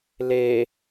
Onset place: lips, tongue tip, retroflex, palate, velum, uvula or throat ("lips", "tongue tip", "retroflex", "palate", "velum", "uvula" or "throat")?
tongue tip